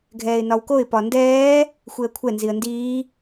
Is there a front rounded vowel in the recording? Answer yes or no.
no